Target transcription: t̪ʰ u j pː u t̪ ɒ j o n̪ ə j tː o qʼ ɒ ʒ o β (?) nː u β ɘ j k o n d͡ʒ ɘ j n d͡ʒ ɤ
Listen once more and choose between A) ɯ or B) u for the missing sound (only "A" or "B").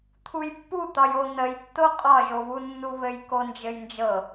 B